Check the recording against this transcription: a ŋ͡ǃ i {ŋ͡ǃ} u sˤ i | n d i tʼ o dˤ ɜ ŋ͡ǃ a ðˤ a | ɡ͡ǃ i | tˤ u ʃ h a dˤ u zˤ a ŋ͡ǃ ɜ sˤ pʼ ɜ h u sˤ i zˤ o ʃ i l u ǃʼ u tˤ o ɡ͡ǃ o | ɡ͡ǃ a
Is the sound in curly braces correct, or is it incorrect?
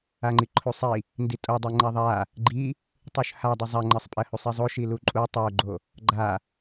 incorrect